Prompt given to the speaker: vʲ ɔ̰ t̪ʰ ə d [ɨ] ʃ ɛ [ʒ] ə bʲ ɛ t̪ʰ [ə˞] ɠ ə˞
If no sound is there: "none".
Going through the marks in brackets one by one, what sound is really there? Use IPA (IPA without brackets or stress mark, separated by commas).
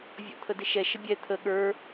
ɪ, ʃ, ə